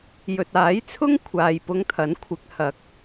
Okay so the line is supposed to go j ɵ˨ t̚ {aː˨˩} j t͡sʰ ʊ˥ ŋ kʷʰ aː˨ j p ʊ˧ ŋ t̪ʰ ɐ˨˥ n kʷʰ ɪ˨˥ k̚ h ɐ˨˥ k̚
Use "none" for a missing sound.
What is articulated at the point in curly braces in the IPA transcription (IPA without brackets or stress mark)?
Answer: aː˨˥